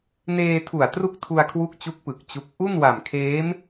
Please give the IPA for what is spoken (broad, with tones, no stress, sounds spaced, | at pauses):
n eː˧ tʰ u˨˩ a̯ t r u˥˩ k̚ tʰ u˧ a̯ kʰ w u˦˥ k̚ t͡ɕ u˦˥ k̚ p ɯ˨˩ k̚ t͡ɕ u˦˥ k̚ ʔ u˥˩ n w a˨˩ m kʰ eː˦˥ m